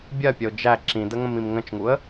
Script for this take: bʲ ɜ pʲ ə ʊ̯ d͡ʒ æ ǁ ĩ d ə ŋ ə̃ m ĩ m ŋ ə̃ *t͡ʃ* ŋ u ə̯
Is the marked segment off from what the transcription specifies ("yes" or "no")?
no